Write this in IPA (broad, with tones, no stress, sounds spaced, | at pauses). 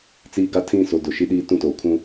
t͡s iː˦ ɡ a˦ tʰ ĩ˦˨ s o˨ d ʊ˨ ʃ i˦ ɗ iː˦ t ũ˦ t oː˨ kʰ ũ˦